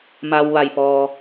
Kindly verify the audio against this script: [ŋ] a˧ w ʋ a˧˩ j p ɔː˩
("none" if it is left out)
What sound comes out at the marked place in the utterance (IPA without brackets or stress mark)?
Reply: m